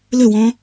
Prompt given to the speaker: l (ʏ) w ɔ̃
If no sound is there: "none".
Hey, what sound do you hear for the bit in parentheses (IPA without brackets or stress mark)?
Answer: ʏ